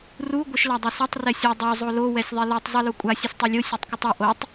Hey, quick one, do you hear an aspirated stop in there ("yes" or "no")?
no